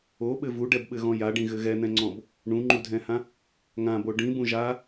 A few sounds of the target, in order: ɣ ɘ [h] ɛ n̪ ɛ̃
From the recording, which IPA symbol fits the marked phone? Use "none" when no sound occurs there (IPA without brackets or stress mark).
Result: ɣ